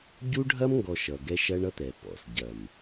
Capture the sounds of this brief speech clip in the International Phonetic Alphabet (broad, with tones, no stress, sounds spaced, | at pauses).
ɟ u˦ ɖʱ ɐ˦ m ŋ ɡ ɔ˨ ʃ ʌ˨ ɡ ɛ˦ ʃ ɐ˦ ɳ ʌ˦ t̪ ɛ˨ p ɔ̰˨ s ɟ ɐ˨ m